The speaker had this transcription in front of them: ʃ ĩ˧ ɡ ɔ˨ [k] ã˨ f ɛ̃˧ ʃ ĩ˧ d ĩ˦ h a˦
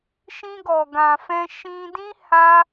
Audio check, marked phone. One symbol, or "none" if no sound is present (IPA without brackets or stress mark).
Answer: ɡ